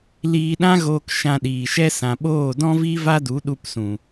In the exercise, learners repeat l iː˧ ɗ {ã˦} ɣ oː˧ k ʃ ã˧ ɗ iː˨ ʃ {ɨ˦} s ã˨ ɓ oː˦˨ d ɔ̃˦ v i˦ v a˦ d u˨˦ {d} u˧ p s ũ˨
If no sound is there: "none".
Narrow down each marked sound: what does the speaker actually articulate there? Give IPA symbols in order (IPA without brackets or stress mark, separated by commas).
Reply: ã˦, ɛ˦, ɗ